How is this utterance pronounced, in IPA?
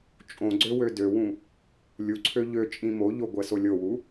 t͡ʃʼõɡ͡ǀø wødøwũ | lʲuǀʰø ʎøt͡ʃʼĩ moʎo ɡʷɛsolʲowu

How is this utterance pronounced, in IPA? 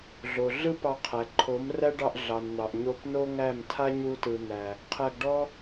ɮo˨ ɮɯ˦pɑ˧qʰæ˨ ǃʰo˨˦mræ˦ɖɑ˧ʔ ɮɑ˨nn̪ɑ˨ʔ ɲo˧pno˦ŋæ˦˨m tʰa˦ɲu˧ tɯ˨ n̪æ˨ | qʰæ˧ɡɖɔ˦

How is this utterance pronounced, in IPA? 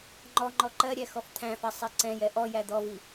ŋ͡ǃɔŋ͡ǃɔ ǃɜɾʲæ xɔft̪ʰæ̃fæ sˤɛǀɛ̃jɛ ʔɔjæ d̪ɔvi

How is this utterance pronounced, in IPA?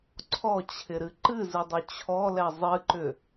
ǀʰɔt͡ɕʰɪɾɨ ǃɨzɨdˤʏ t͡ɕʰɔlɛ zˤɨǃʏ

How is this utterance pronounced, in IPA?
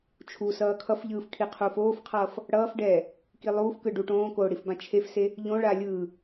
t͡ʃʰusʌː kʰʌfʎɯːf kʰiqʰufoːfqʰʌːf | ɽʌːfɖɛː | kilˠuːfkɯ ɖuʈõːkoː ɽifbãt͡ʃʰefse | ʎõɭa lʲɯː

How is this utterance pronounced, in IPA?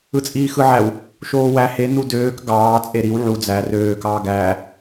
ɯt͡sʼiːxɯʕæw | ʃoːwæ he nudøːk ɡɑː t͡sʼeɾiw ʕu d͡zæ røː kɑːɡæː

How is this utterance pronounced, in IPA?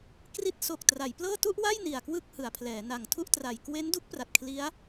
kri˦˥t̚ so˨˩k̚ tra˩˦jplɤː˥˩ tu˥˩ʔwa˥˩j ni˨˩a̯kwɯ˥˩k̚hɯ˩˦a̯pʰlɛː˩˦ na˨˩ŋ tʰu˥˩ʔtra˨˩j kwe˦˥ndu˦˥k̚pra˨˩t̚ kʰli˦˥a̯

